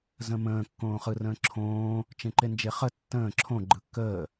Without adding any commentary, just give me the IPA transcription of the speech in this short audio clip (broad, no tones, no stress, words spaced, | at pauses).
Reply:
zə̃mə̃ː kːõːχɯrə̃ːǁʰõː | t͡ʃẽǃend͡ʒeχə tːə̃ː ǁʰõ ɡ͡ǃɯkːəː